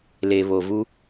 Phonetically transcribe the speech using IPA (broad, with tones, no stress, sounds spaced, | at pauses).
l e˨ β o˨ v u˦